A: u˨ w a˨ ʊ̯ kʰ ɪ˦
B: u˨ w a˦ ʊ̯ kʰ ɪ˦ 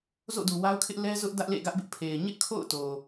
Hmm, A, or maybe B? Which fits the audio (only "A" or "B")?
B